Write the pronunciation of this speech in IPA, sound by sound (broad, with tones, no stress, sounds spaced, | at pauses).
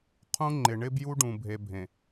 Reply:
qʰ ũ˦ ŋ͡ǃ ɪ˨ ɳ ɪ˦ b j u˦ ɖ ũ˨ bʱ e˨ bʱ ẽ˨